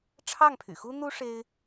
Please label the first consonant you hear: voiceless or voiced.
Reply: voiceless